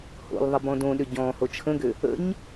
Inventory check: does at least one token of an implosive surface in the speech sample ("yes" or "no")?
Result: yes